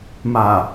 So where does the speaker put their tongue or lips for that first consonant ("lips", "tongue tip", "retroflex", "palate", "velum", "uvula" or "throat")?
lips